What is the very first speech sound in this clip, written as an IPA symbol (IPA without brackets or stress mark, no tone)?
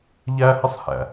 ʎ